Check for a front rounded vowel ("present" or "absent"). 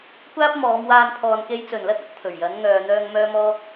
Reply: present